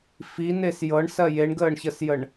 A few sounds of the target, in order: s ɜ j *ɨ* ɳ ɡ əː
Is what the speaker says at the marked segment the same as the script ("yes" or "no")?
no